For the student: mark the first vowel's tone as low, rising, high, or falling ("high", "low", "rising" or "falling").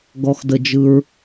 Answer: low